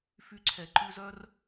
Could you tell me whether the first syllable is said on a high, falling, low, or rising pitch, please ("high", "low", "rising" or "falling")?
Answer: high